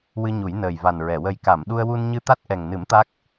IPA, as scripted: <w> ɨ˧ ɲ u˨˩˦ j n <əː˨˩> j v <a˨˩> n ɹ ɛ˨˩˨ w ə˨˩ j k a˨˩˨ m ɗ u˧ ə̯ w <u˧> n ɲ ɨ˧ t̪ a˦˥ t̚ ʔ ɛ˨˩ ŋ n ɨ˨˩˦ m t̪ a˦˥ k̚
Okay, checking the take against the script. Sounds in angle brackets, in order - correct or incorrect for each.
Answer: correct, correct, correct, correct

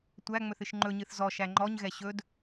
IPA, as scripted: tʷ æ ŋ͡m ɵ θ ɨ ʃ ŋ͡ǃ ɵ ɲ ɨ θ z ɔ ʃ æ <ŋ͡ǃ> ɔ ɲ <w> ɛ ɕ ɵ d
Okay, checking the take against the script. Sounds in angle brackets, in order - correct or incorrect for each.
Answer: correct, incorrect

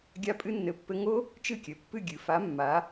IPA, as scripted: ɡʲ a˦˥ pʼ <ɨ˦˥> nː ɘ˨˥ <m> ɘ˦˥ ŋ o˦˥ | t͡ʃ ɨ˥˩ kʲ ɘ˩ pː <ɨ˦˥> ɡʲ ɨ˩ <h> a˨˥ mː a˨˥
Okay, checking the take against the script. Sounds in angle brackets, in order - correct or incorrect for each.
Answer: correct, incorrect, incorrect, incorrect

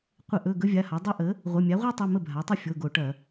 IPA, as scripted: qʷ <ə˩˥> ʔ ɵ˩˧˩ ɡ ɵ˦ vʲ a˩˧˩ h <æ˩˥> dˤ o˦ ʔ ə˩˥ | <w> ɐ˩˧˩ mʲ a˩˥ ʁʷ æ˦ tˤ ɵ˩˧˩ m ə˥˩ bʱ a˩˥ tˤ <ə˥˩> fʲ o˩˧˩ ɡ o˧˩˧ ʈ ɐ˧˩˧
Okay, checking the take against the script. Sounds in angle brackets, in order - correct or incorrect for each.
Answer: incorrect, incorrect, incorrect, correct

